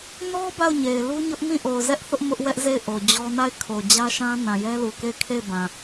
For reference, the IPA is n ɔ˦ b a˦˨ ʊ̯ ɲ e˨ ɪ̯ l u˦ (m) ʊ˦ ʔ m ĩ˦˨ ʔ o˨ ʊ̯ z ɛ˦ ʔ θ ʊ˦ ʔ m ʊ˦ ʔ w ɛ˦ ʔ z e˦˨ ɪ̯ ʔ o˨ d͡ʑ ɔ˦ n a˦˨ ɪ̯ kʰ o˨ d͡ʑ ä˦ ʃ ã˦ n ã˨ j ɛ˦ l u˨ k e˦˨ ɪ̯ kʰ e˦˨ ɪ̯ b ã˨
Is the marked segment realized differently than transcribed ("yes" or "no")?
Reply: yes